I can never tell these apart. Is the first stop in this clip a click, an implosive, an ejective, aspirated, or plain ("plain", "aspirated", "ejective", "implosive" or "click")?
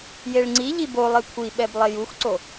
click